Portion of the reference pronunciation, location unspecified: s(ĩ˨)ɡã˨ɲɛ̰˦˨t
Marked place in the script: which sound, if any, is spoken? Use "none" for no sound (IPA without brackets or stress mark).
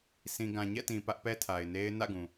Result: ĩ˨